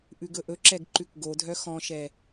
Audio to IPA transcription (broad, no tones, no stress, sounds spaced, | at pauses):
ʔ ʉ ɡ ɵ ʔ ɵ ǁ ɛ ɡ ǃ ʉ k ɡ o dʱ œ x ɔ̃ ʃ ɛ